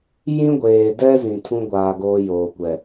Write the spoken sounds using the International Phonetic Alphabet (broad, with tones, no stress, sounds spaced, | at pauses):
j ĩ˦ ɡʷ eː˨ d ɛ˦ z ĩ˨ tʰ ũ˦ ɡʷ aː˨ ɡ oː˦ j oː˨ kʷ ɛ˨